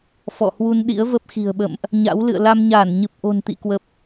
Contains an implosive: yes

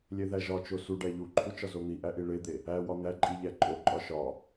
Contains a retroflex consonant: yes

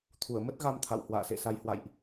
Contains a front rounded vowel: no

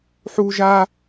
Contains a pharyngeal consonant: yes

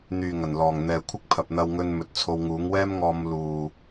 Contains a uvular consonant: no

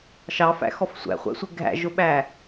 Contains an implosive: yes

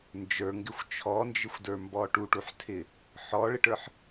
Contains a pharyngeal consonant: yes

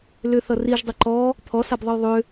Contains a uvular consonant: no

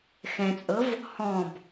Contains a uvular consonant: no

